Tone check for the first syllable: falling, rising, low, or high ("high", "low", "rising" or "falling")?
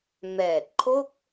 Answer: low